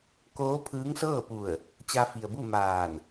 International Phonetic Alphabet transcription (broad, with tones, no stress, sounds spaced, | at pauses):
k oː˧˥ pʰ ɯː˧˥ ŋ s ɤː˥˨ p u˧˩ ə̯ | t͡ɕ a˧ f i˩ ə̯ b u˥˨ m aː˧˩ n